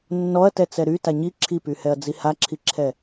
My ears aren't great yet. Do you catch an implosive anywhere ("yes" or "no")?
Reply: no